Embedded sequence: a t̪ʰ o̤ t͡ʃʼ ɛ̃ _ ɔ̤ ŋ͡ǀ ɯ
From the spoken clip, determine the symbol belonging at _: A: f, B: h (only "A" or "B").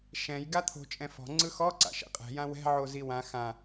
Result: A